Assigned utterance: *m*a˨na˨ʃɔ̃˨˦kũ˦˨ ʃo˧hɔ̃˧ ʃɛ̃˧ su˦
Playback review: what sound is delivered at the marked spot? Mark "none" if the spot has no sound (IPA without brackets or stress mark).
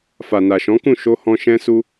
f